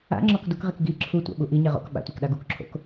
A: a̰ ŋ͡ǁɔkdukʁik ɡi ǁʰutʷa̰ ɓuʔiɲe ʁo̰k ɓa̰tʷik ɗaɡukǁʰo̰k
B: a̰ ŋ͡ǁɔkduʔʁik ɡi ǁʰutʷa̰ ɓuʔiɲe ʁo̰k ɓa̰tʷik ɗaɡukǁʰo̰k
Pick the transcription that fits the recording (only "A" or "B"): A